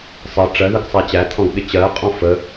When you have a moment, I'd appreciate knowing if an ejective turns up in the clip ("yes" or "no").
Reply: yes